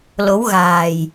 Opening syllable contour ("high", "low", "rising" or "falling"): rising